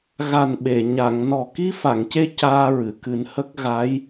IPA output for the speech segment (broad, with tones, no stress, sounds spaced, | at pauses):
ɣ a˨˩ n ɓ e˨˩˨ ɲ a˨˩˨ ŋ n ɔ˨˩ k i˧ f a˨˩˨ ŋ c e˧ c aː˧ ɹ ɨ˨˩˨ k ɨ˨˩˦ n h ə˦˥ k̚ ɣ a˧˥ j